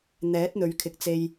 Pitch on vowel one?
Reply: rising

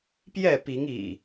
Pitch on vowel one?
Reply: falling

